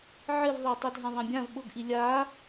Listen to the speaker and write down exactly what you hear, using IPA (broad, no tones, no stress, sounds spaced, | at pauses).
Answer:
ʕ ɪ v ðˤ a tˤ i dʱ ã ðˤ ã bʲ ã v ɓ ʊ ɡ ʔ i lʲ a